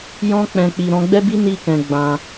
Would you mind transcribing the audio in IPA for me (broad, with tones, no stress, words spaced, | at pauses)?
jɔ̃˧k͡pɛ̃˨k͡pi˨ ɾɔ̃˧ɡ͡bɛ˦bi˦ ni˦kɛ̃˧ ɡ͡bã˧